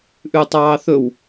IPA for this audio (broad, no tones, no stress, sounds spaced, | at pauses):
ʔ ʉ tˤ ɑː θ ɵ w